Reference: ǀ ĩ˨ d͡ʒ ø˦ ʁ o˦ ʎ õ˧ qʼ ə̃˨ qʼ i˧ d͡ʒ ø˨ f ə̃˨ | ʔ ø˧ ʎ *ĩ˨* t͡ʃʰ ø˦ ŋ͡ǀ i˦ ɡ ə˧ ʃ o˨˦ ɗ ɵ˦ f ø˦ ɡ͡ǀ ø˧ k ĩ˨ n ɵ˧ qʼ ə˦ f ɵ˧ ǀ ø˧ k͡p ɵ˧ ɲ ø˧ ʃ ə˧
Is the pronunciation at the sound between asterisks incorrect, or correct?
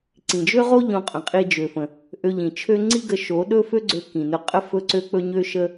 correct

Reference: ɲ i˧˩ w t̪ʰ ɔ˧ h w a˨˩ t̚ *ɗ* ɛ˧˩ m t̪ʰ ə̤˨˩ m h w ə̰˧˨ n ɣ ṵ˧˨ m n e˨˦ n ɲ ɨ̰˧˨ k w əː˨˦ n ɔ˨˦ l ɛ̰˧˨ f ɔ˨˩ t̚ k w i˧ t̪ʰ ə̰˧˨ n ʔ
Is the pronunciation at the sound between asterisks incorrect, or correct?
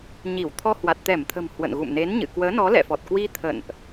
incorrect: t̪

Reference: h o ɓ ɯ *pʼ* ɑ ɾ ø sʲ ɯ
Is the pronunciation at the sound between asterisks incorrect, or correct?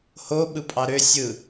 correct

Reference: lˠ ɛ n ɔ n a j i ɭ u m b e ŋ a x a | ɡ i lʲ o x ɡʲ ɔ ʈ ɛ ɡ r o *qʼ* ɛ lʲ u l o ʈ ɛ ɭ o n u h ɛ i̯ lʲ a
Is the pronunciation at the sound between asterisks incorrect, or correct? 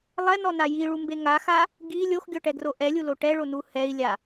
incorrect: ʔ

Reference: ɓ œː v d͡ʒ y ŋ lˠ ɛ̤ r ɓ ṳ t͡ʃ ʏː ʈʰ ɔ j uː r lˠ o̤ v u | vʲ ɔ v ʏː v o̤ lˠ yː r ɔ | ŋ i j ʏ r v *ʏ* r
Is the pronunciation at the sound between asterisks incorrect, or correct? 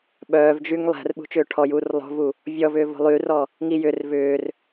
incorrect: ʏː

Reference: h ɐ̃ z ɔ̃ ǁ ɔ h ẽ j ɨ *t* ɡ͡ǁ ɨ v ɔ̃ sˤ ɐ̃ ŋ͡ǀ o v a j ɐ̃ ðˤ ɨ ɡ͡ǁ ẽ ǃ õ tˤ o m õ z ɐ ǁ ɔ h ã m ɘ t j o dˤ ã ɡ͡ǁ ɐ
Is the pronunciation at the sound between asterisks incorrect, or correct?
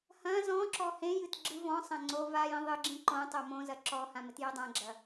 correct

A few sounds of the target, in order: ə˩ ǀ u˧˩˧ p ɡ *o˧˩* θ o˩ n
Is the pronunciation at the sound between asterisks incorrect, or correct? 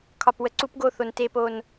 correct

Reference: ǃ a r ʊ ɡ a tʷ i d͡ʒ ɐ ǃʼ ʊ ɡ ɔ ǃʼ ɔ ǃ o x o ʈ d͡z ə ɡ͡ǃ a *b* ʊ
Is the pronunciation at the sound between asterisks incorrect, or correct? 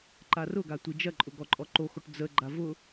incorrect: v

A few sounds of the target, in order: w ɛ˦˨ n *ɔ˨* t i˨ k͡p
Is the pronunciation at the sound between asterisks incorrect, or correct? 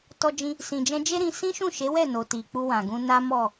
incorrect: o˨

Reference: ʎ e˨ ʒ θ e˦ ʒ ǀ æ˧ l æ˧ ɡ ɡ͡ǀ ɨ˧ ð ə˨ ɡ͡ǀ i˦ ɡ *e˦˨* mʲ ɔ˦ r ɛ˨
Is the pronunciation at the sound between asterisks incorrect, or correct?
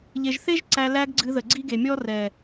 incorrect: e˨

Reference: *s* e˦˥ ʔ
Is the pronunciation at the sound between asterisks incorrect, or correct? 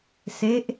correct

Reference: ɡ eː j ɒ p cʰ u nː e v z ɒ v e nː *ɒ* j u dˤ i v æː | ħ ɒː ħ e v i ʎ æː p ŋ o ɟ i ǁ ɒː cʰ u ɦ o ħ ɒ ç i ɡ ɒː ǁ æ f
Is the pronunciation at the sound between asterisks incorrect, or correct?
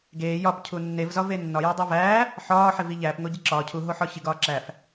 correct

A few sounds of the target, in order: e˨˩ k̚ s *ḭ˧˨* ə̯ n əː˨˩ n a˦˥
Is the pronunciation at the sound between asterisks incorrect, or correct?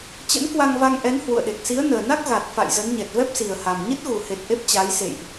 incorrect: i˨˦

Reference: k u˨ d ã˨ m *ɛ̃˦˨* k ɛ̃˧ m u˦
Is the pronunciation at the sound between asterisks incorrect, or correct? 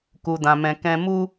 incorrect: ɛ̃˨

